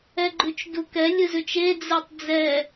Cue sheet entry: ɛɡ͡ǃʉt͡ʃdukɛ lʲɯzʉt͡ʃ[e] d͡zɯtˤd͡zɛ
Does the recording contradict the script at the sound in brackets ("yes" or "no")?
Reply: no